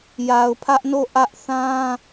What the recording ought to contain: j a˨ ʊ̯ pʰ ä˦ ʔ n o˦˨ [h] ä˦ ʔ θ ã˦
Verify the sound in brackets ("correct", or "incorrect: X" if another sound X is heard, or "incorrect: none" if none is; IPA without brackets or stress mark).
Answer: incorrect: ʔ